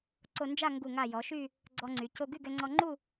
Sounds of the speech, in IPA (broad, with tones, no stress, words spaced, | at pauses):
ǀo˧nd͡ʒa˥˧ ŋɡu˧˩ŋa˧˩ jɔ˩˧ʃy˥˧ | ɡ͡ǀɔ˧ŋ͡ǀy˩˧ co˧ɡy˥˧ɡɛ˧ ŋ͡ǀɔ˧ŋ͡ǃu˥˧